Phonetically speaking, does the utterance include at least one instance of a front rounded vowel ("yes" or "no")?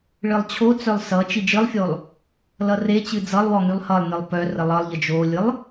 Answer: yes